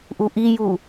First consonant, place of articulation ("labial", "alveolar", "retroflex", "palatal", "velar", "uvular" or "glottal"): glottal